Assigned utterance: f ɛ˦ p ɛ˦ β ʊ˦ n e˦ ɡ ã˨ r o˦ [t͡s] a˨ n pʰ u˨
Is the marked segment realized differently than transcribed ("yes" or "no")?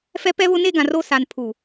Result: yes